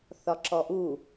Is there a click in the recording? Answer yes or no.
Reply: yes